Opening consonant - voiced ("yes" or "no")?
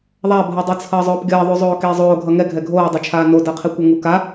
yes